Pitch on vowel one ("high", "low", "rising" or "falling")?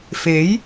rising